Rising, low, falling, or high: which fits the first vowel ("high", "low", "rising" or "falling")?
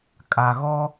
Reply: low